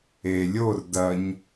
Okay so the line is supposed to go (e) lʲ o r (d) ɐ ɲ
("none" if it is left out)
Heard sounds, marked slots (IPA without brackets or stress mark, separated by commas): e, d